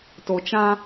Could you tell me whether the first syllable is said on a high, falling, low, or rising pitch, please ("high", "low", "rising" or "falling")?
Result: low